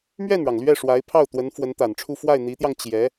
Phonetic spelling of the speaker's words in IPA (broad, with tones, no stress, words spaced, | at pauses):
mɥɛ˥˩nɻɑ˩ŋ lɥɛ˥˩ʂwa˧˥ɪ̯ pʰɑ˥˩ʊ̯t̪wə˧˥n fwə˧˥nt̪a˨˩nʈ͡ʂʰu˥˧ fwa˥˩ɪ̯n̪i˧˥t̪jɑ˧ŋ t͡ɕjɛ˧˥